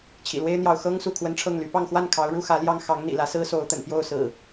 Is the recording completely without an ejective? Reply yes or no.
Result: yes